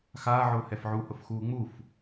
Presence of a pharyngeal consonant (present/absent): present